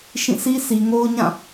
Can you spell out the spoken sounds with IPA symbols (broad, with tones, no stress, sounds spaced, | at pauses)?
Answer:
ʃ ĩ˦˨ sʰ i˦ s i˨ ŋ o˦ ʊ̯ ɲ ã˦˨